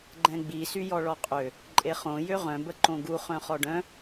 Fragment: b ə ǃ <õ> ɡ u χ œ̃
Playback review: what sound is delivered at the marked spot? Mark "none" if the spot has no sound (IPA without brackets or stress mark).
õ